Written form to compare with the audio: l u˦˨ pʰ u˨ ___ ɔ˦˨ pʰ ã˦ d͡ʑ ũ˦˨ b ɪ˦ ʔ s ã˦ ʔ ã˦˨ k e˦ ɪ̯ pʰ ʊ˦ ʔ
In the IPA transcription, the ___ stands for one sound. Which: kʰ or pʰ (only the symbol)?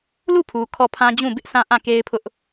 kʰ